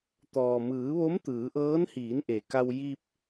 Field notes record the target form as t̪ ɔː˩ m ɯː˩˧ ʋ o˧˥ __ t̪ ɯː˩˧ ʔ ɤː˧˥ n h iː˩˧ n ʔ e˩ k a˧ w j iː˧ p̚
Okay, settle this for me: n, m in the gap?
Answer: m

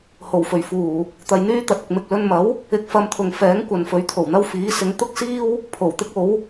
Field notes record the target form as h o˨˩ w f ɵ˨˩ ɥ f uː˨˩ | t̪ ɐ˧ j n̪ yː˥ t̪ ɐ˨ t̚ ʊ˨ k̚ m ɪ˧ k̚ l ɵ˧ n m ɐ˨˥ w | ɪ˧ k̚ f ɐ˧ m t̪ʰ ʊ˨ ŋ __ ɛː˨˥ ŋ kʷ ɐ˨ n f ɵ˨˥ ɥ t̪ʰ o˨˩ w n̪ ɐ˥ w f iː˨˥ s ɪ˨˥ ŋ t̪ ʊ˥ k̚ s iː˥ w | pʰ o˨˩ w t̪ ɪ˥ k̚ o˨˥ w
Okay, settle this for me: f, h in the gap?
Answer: f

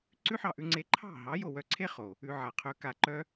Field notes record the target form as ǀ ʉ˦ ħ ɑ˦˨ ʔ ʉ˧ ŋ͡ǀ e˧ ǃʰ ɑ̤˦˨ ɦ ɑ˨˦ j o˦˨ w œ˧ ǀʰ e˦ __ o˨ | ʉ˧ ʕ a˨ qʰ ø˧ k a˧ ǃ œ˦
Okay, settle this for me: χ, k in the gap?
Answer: χ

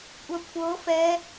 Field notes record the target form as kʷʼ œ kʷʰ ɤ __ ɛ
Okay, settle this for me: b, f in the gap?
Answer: f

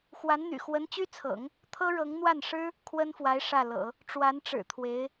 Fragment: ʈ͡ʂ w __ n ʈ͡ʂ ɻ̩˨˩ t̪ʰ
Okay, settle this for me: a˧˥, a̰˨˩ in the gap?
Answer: a˧˥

